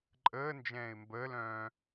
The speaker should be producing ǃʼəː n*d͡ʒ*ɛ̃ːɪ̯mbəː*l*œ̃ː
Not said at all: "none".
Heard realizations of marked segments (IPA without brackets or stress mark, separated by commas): d͡ʒ, l